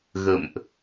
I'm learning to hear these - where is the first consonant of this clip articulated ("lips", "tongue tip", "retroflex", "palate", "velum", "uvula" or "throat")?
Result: velum